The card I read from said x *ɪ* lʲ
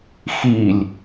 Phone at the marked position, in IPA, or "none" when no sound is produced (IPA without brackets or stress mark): i